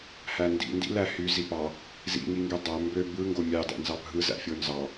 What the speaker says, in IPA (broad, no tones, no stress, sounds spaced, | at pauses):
h æ n d ḭ n d ḭ l æ h y z i p ɑ | z ḭ ŋ i ŋ ɡ y dˤ æ m b ø b ɯ ŋ ɡ o mʲ ɑ d æ̰ n z ɑ bʱ ɯ z æ̰ fʲ o n z ɑ